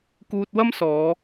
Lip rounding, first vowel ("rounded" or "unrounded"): rounded